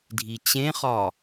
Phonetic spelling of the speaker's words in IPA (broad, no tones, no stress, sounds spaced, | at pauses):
dʱ i t͡ɕ ẽ χ ɒ